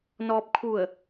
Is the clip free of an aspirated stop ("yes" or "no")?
no